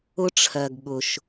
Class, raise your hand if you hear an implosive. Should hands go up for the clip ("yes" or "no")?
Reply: yes